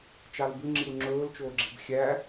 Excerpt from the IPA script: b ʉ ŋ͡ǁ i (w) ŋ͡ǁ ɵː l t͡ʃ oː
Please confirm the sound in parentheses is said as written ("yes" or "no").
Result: yes